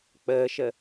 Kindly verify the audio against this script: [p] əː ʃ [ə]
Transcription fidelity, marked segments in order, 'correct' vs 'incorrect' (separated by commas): incorrect, correct